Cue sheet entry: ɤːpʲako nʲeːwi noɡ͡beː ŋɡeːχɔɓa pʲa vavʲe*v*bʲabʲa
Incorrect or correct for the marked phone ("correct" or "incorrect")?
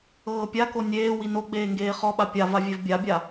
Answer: correct